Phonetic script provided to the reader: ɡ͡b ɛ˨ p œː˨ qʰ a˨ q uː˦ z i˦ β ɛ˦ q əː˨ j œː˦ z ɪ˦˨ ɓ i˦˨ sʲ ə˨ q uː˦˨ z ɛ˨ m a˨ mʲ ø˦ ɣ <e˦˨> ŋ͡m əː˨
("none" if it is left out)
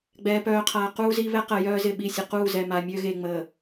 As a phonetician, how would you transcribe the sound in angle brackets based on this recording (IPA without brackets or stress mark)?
e˨